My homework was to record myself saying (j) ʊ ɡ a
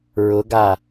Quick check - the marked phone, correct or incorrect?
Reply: incorrect: ɹ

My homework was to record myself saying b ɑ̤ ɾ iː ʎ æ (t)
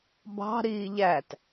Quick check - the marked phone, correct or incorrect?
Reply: correct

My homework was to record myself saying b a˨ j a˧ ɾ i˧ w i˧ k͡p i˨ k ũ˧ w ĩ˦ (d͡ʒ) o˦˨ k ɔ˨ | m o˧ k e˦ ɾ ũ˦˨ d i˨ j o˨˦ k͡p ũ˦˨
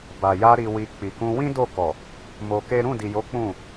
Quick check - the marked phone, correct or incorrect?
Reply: incorrect: d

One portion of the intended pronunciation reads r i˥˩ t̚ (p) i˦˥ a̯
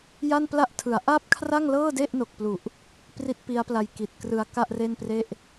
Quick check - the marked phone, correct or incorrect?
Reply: correct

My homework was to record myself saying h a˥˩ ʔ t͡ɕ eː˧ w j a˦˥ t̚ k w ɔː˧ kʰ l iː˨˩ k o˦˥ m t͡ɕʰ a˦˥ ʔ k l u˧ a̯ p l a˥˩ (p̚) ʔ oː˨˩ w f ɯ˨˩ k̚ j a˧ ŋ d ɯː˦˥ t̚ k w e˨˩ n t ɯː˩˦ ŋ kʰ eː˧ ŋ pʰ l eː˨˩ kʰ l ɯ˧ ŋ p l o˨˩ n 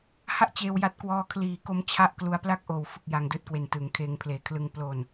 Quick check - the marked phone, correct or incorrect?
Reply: incorrect: k̚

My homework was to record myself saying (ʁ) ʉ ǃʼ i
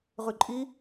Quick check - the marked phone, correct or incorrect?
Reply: correct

